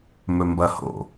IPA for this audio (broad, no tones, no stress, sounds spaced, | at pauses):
m ɵ m b ɐ h o̰